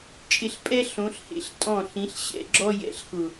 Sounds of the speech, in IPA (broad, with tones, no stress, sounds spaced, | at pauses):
t͡ʃʼ ɪ˧ ɬ pʼ ɛ˦ ɬ õ˨˦ ɬ h ḛ˧ ɬ tʼ ɔ̃˦˨ ɬ ĩ˨˦ ɬ ɕ ɛ̰˧ ɡ͡ǁ ɔ˦ j ɛ̰˨ ɬ x ʊ˨